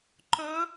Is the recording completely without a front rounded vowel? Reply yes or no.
no